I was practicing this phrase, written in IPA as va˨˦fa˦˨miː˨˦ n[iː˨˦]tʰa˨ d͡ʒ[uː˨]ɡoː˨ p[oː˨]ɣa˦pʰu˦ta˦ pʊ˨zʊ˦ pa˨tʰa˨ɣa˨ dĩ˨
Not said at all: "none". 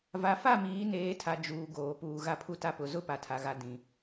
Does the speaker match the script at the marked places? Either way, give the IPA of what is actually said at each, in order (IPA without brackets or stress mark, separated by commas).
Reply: eː˨˦, uː˨, uː˨